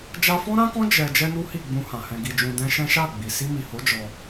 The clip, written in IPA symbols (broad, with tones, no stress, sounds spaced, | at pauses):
d͡ʒ a˧ f ɔ̃˦ ɾ ã˦ k ɔ̃˦ d͡ʒ ɛ˧ d͡ʒ ɛ˦ n u˦ h i˦˨ ɡ͡b ũ˧ h ã˨ h ɛ̃˧ ɡ i˧ d͡ʒ ũ˧ d ɛ̃˧ ʃ ɛ̃˦ ʃ a˦˨ ɡ͡b i˨ s i˧ m i˨ h o˨˦ d͡ʒ ɔ˧